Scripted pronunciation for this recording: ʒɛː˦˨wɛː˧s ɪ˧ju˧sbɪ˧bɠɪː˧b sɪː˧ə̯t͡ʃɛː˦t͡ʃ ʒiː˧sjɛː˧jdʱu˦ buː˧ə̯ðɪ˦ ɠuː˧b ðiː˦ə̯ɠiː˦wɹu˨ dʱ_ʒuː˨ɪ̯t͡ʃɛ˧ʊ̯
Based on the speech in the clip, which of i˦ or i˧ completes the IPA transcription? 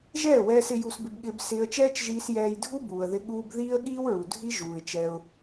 i˦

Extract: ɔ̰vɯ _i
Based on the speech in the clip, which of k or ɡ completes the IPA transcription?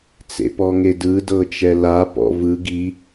ɡ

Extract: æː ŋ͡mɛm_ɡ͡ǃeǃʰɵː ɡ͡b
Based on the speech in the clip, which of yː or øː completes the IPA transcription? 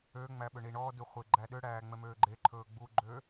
øː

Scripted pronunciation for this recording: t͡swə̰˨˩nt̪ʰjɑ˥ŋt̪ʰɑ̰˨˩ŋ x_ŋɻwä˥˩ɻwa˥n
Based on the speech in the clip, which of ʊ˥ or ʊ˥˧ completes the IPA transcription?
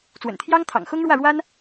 ʊ˥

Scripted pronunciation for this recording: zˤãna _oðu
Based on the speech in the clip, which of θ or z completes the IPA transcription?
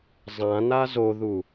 z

